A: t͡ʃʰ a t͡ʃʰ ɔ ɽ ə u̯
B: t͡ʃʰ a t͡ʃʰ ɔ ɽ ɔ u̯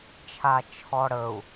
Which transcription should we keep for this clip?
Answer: A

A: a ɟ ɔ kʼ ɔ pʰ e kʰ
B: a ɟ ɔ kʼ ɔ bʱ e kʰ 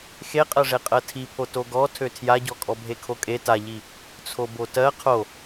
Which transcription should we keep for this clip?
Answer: B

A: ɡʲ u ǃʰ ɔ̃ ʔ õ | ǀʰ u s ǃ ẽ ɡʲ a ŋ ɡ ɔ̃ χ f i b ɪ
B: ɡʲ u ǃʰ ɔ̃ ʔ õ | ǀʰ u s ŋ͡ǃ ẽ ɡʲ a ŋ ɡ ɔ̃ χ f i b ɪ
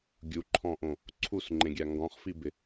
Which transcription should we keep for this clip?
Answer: B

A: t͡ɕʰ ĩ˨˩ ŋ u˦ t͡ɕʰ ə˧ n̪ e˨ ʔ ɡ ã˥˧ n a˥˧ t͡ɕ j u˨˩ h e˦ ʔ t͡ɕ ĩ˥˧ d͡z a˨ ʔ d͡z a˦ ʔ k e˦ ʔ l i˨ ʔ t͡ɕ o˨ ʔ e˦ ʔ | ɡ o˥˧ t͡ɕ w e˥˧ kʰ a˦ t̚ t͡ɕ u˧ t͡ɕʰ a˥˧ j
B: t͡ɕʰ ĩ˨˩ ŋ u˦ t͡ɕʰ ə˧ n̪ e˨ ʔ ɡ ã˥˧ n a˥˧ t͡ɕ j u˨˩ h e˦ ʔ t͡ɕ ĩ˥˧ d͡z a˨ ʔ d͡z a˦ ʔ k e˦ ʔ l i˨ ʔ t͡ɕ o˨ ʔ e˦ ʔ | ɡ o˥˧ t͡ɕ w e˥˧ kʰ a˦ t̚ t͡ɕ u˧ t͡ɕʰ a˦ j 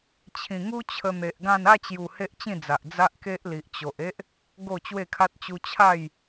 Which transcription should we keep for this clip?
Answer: A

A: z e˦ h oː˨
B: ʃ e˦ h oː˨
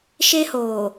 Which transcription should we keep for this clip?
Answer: B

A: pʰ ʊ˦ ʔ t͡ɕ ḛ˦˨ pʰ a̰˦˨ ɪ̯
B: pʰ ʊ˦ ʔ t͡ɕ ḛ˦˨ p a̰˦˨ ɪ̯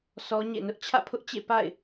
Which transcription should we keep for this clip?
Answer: B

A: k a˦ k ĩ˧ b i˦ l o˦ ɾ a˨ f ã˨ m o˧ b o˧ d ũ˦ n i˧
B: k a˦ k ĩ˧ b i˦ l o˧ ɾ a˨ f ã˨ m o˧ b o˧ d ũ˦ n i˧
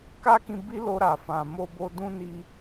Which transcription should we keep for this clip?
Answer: B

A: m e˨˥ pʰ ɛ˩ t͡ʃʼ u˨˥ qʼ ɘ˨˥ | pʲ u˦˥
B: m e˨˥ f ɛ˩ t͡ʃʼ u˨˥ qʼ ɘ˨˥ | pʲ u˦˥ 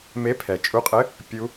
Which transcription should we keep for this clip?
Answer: A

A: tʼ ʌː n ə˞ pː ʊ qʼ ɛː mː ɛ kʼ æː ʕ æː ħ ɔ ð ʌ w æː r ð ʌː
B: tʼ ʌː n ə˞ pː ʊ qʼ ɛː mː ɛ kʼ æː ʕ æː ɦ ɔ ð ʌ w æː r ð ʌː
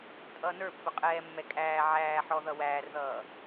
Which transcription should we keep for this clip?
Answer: A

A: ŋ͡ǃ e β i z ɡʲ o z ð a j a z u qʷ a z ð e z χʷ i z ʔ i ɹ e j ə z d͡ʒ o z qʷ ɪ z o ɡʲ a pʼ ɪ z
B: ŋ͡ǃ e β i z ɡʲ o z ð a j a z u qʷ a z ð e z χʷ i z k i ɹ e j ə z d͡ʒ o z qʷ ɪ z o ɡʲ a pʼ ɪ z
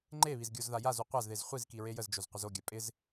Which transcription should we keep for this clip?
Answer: B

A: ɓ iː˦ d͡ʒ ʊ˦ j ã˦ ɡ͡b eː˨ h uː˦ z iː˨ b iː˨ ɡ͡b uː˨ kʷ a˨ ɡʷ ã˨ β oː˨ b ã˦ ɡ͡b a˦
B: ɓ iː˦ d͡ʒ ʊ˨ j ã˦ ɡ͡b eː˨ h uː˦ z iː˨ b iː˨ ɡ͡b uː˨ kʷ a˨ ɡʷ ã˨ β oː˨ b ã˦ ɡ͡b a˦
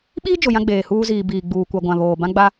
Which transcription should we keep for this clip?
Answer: B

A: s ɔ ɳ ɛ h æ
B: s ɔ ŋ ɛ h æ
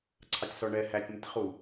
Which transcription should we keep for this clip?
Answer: A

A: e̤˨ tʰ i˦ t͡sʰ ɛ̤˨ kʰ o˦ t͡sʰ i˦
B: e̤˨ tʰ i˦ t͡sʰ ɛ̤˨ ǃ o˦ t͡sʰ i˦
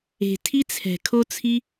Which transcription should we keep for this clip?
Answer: A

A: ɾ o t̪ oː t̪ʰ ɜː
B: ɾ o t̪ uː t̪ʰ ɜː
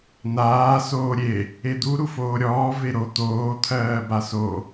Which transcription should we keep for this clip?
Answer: A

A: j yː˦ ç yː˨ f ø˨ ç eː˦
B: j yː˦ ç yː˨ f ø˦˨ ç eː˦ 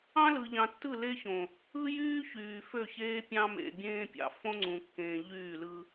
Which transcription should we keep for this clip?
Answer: B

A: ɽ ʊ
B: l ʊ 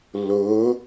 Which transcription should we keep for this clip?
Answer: B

